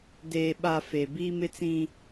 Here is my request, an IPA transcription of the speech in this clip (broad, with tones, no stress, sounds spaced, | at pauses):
d eː˨ ɓ a˨ f e˨ b iː˦ m ɪ˦ t͡s ĩ˦